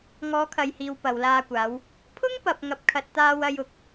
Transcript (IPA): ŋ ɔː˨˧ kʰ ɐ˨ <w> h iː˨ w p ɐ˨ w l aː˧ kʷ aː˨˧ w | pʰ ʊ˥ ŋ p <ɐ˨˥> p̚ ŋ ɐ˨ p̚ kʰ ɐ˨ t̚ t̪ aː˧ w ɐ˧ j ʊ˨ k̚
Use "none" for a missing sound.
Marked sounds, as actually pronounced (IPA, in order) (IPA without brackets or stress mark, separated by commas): j, ɐ˨